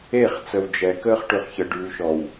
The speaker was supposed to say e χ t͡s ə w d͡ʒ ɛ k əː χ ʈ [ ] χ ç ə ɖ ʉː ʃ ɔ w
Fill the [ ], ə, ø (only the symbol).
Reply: ø